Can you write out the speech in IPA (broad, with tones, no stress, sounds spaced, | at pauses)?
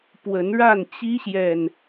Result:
p w ə˨˦ n ɻ a˥˨ n t͡ɕ i˦ ɕ j ɛ˨ n